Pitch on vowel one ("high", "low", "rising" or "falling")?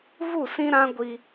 falling